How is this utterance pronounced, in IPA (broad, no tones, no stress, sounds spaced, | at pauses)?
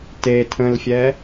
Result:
t e tʰ ə̃ l fʲ ɛ